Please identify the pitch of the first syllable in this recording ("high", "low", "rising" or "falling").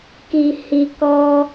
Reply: low